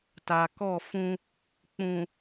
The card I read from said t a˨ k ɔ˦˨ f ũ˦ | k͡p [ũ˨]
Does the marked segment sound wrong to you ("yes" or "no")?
no